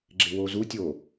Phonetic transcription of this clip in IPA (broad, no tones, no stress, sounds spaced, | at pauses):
ɡ͡ǁ ɪ w o z u tʲ o